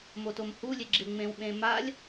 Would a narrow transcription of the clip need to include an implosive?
yes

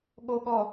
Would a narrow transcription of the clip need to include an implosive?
yes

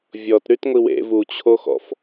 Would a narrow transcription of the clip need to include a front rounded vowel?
yes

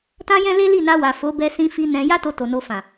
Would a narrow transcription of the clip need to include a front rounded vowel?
no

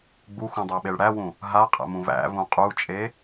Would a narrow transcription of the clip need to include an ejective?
yes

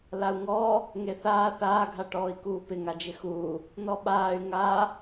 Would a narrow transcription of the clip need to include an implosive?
yes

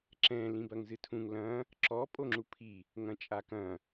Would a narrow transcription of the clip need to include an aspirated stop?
yes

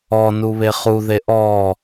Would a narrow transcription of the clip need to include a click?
no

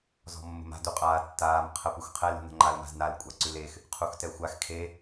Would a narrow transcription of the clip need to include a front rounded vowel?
no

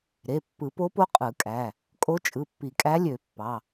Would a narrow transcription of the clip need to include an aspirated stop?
no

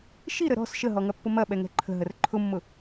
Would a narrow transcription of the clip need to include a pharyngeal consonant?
no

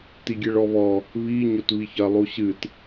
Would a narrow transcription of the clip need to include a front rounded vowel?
no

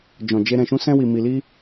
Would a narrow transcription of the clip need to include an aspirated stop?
no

